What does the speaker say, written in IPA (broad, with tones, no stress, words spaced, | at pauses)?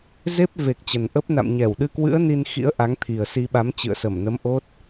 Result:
ze˦˥p̚ ve˨˩k̚ t͡ɕə˨˩nʔə˦˥p̚ na̰˧˨mɲɛ˧˩w ɗɨ˧kwɨ̰˧˥ə̯ ni˧nxḭ˧˥ə̯ ʔa˨˦ŋt̪ʰi˨˩ə̯si˧ ɓa˨˦m t͡ɕɨ̰˧˨ə̯sə˧˩mnə˨˦m ʔo˦˥t̚